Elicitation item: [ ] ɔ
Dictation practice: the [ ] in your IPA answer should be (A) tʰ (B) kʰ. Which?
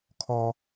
B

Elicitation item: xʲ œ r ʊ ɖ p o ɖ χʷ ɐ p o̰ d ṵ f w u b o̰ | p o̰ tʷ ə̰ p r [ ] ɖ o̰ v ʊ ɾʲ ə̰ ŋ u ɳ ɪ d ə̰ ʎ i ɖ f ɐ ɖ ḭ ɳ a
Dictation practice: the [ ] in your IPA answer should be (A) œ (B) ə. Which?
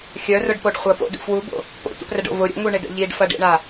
B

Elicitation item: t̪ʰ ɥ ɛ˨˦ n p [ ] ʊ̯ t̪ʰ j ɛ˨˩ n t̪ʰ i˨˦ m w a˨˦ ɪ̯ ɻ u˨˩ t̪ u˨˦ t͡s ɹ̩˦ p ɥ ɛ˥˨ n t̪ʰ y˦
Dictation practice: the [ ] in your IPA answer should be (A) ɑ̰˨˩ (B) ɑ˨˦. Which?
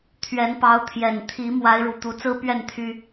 B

